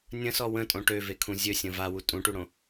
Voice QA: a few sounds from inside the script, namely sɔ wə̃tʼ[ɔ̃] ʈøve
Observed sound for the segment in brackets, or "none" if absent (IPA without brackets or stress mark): õ